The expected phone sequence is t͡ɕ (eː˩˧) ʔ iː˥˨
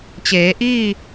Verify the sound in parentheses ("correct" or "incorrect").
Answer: correct